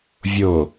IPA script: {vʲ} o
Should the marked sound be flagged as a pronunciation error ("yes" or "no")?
no